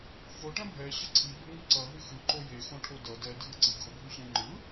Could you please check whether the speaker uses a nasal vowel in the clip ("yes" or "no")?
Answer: yes